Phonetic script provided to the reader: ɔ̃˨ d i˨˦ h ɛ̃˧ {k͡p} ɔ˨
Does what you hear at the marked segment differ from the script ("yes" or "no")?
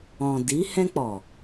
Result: no